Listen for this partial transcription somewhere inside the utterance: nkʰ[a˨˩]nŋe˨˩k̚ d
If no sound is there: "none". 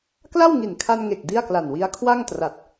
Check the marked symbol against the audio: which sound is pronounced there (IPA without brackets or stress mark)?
a˧